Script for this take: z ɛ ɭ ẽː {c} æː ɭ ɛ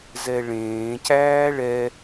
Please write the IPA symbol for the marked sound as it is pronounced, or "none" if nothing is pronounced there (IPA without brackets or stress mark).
c